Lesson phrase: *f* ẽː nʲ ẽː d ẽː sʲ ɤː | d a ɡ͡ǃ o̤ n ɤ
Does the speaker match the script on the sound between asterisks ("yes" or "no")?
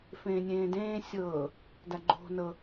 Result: yes